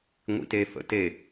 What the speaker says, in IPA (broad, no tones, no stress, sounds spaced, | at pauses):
ŋʷ ḭ t e f ə̰ t e